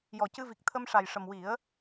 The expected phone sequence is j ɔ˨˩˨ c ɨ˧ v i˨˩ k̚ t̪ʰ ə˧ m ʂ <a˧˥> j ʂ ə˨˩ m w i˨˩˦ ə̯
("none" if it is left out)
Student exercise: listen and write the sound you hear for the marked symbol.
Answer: a˨˩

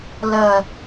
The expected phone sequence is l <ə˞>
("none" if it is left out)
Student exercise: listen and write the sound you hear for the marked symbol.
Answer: ɐ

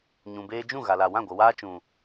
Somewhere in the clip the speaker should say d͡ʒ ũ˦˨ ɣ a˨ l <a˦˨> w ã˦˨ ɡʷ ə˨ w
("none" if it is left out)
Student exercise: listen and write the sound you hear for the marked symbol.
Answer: a˨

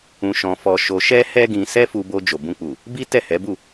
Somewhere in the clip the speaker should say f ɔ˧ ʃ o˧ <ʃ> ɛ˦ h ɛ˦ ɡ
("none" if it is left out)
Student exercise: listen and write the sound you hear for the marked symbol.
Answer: ʃ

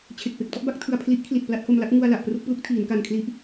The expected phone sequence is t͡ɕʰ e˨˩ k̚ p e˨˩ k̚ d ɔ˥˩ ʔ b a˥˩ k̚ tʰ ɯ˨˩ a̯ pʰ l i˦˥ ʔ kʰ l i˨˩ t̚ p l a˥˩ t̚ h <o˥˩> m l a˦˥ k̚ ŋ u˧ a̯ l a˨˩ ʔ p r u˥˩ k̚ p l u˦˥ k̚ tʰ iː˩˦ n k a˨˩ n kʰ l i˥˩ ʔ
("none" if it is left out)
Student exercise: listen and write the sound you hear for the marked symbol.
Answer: o˧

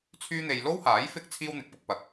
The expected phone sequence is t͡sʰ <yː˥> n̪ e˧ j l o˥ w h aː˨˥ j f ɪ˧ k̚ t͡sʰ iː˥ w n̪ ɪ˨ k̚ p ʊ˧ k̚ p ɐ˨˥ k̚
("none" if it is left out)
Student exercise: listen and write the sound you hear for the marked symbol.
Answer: yː˥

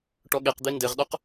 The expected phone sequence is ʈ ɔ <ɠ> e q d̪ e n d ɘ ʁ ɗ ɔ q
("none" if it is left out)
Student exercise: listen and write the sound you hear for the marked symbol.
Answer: ɠ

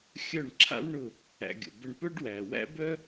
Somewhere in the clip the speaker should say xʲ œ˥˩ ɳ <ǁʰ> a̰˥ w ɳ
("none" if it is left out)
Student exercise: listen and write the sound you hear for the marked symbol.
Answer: ǁʰ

